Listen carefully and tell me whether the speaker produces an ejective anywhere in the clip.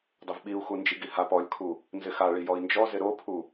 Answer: no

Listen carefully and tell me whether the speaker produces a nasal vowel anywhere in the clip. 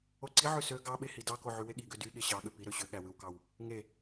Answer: no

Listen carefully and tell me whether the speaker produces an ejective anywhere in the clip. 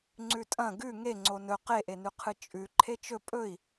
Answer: yes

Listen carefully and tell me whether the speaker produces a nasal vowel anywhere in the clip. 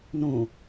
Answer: yes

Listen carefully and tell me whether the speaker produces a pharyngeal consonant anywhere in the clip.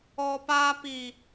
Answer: no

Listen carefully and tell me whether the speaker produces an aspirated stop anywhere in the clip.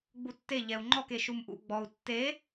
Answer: no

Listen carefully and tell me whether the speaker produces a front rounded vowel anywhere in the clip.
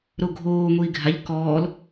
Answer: no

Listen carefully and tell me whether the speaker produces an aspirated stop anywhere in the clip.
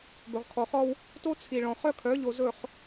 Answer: yes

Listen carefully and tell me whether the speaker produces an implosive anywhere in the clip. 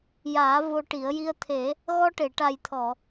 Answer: no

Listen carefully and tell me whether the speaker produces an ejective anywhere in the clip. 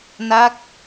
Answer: no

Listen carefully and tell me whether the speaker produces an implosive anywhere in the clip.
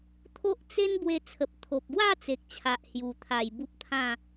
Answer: no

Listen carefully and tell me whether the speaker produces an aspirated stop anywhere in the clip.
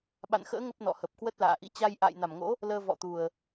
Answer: no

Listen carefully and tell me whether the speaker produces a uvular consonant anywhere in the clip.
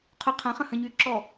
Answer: yes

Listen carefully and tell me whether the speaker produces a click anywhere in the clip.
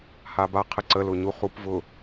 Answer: yes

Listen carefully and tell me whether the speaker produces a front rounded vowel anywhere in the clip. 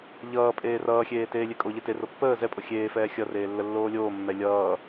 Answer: no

